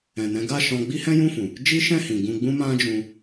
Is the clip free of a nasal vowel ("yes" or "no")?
no